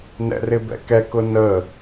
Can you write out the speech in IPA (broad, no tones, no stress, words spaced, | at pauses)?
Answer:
nɛ̰rɪbɛ̰kɛ kʊnə